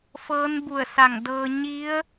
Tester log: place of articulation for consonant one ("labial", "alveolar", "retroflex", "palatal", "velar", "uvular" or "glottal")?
labial